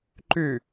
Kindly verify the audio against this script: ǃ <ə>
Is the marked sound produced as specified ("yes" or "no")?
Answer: no